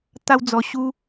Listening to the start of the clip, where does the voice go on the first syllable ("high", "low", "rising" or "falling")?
high